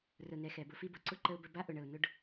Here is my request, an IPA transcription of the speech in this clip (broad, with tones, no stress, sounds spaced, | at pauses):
r ʊ˨ n ɛ˨ x ɛ˨ b ʊ˧ f i˦ b ʊ˨ ǀ ʊ˦ ǃ ə˧ ʊ̯ b ə˧ b a˦ ʔ ʊ˨ ɳ ə˨ ʊ̯ n ʊ˧ ɖ